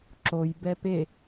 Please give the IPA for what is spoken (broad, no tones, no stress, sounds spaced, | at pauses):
ǁ o j b ɛ p e